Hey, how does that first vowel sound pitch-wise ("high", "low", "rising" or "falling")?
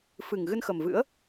low